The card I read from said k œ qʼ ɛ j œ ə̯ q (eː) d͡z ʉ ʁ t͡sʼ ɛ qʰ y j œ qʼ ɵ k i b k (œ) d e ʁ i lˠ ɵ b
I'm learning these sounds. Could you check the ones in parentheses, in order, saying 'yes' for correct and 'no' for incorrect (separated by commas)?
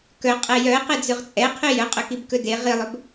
no, no